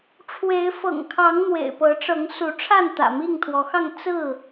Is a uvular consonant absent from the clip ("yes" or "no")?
yes